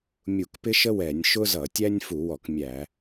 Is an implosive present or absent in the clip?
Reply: absent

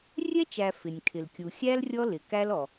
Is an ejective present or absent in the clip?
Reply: absent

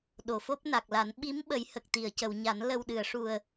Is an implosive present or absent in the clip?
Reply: present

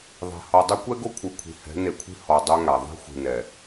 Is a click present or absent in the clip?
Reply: absent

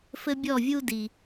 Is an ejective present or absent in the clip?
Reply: absent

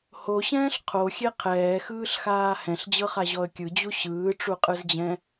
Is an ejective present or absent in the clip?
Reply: present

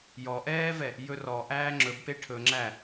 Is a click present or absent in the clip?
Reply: present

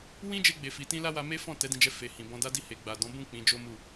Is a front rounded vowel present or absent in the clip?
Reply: absent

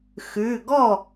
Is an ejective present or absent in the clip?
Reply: absent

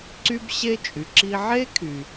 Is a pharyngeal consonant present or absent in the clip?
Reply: present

